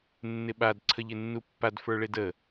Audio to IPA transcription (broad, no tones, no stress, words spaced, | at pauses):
nːɪɓad ǀʰəʎɪnːupːad fə˞ɭedə